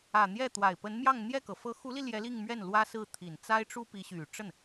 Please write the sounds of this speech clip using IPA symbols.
ä˨˩ n̪ j ɛ˥˩ t̪ w a˨˩ ɪ̯ p ə˧˥ n m j ɑ˥˧ ŋ n̪ j ɛ˥˩ k ɤ˩ f ɤ˧˥ x u˧˥ l i˧ l j ɛ˧˥ l i˥˧ ŋ m ɥ ɛ˥˩ n l w ä˥ s ɹ̩˥˩ t̪ʰ i˨˩ n t͡s a˥ ɪ̯ ʈ͡ʂ u˥ p i˧˥ ɕ y˨˩ ʈ͡ʂ ə˥˩ n

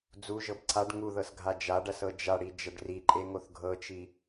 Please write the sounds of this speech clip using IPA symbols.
d͡z u ʒ ɤ b ǀʰ a ɖ ŋ u ð ɤ s ɡʱ a d͡ʒ a ɖ ɐ s ɤ d͡ʒ a ɽ i d͡ʒ ɐ ɖ r i ǃʼ e ŋ o θ ɡʱ ɤ t͡ʃ i

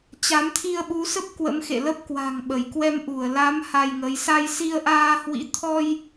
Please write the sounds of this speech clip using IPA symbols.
t͡ɕ a˨˦ m t̪ʰ i˧ ə̯ ɓ u˨˦ s ə˦˥ p̚ k w ə̰˧˥ m x ḛ˧˨ l ə˦˥ p̚ k w a̤˨˩ ŋ ɓ ə˧˩ j k w ɛ˧ m ʔ u˧˩ ə̯ l a˨˦ m h a˧ j ŋ ə˨˦ j s a˧ j s i˧ ə̯ ʔ aː˧ h w ḭ˧˥ t̪ʰ ɔ˧ j

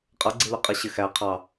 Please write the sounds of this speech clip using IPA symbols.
qʼ ʌ ɡ͡ǀ i l ʊ qʼ i ɕ ɪ x æ qʰ ɑ

